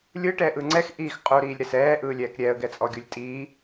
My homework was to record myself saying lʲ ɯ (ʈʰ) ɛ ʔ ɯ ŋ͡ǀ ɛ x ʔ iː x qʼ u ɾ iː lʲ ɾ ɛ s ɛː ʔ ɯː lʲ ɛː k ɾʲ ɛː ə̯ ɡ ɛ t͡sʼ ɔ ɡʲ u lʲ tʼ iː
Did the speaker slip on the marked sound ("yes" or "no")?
yes